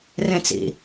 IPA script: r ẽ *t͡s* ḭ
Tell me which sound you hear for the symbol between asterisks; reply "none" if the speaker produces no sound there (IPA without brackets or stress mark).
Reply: t͡s